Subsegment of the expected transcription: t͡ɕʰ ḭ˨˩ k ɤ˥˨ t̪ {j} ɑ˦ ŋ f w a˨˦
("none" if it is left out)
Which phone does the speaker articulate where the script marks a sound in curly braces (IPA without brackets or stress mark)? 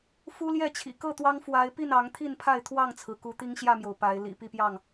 w